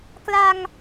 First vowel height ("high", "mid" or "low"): low